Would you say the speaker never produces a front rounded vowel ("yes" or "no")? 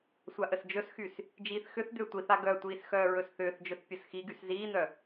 no